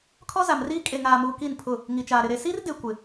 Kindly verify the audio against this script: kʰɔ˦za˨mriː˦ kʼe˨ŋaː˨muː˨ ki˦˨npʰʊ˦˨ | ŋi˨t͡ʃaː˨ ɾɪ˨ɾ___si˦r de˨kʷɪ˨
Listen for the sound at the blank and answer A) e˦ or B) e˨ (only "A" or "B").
B